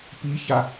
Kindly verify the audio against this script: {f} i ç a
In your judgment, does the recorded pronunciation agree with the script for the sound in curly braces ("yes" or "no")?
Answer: no